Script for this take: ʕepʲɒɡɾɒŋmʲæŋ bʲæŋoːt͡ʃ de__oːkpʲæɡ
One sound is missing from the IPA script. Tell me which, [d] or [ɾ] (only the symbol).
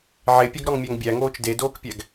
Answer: d